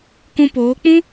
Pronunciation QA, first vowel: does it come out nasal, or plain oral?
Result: nasal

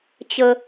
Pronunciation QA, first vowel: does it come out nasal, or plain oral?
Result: oral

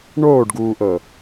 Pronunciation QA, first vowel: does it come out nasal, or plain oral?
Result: oral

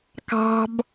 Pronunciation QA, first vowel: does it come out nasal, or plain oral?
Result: oral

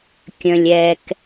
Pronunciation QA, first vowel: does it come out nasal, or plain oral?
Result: nasal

